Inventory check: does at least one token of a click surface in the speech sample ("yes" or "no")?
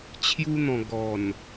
no